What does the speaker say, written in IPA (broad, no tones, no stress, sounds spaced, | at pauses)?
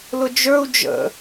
l ʊ d͡ʒ ə˞ u̯ d͡ʒ ə̰